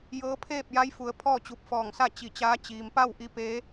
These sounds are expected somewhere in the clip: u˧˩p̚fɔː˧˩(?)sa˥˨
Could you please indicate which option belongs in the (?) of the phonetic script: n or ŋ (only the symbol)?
ŋ